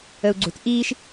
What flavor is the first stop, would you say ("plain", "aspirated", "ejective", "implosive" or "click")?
click